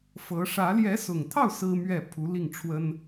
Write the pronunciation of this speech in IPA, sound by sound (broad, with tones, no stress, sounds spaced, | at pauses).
f ɤ˧˥ ʂ ä˧˥ l j ɛ˧˥ s ʊ˨˩ ŋ t̪ʰ ɑ˥˩ ʊ̯ s ɹ̩˥ m ɥ ɛ˥˩ pʰ u˧˥ l i˥˩ ŋ ʈ͡ʂʰ w ə˥ n